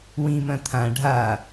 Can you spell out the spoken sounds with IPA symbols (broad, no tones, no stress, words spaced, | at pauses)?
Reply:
wĩmɐ̃ t̪ʰã ɖʱa